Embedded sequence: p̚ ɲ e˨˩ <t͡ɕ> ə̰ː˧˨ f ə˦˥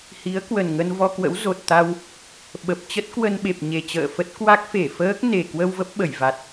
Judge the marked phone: correct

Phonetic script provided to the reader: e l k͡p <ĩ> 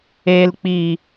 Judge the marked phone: incorrect: i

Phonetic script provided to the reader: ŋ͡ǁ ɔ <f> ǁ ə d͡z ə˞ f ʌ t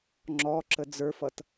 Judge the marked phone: incorrect: none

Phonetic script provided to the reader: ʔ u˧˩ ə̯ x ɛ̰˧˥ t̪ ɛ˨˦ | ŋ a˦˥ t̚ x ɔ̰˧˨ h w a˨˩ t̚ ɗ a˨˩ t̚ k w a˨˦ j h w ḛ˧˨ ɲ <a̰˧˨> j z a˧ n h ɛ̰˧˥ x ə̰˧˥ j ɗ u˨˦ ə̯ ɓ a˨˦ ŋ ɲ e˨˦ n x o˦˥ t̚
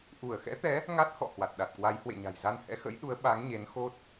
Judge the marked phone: incorrect: a̤˨˩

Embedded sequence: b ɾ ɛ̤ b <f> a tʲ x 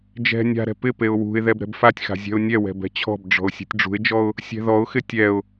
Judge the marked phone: correct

